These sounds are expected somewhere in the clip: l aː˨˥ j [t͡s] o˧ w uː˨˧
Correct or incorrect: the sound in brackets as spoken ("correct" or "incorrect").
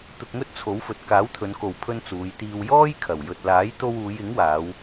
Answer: incorrect